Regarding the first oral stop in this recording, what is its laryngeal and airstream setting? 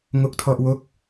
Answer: plain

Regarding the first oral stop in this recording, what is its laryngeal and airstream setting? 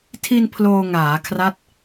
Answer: aspirated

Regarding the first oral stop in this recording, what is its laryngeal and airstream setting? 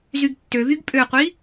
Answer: plain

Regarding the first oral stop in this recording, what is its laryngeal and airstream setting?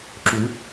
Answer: click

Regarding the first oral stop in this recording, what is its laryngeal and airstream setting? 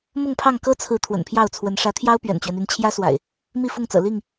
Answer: aspirated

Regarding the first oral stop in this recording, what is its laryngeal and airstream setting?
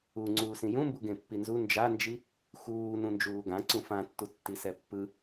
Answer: click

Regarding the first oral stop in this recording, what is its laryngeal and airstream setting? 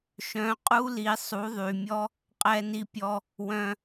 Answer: ejective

